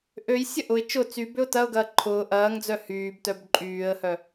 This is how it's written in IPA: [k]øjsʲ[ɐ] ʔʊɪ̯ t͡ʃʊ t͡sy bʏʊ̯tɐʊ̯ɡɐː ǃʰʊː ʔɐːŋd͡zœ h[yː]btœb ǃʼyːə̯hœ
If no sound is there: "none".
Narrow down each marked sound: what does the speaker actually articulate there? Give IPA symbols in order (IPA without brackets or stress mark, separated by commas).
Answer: ʔ, ɐ, yː